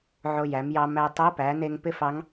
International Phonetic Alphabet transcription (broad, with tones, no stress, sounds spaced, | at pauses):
ʕ o˧ j æ˩˧ m j ɑ˧ m æ˧ tˤ o˧˥ p æ˩˧ n e˧ ŋ p ɪ˥ f ɑ˧˥ ŋ